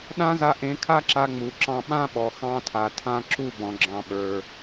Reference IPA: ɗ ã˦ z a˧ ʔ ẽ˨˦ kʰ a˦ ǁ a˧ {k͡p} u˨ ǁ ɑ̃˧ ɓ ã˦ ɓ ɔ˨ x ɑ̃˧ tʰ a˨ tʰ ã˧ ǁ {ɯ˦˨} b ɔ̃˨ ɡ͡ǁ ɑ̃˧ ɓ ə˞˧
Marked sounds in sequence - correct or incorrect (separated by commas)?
incorrect, incorrect